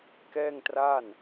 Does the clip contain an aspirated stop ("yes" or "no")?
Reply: no